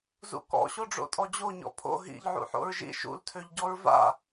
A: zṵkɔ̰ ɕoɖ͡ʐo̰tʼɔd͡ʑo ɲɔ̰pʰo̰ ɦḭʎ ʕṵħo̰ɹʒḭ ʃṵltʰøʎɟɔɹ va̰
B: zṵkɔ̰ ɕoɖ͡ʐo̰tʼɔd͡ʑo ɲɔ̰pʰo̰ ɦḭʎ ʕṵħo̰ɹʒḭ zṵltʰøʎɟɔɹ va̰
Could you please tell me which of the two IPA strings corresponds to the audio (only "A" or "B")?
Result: A